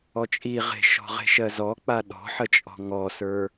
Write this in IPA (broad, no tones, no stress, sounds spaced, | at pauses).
ɔ t͡ʃʼ i ʁ e̤ ʃ ɔ̤ ʁ e̤ ʃ ɜ z ɔ k͡p a ɗ ɔ̤ ħ ə t͡ʃʼ ɔ̤ ŋ ɔ s ə˞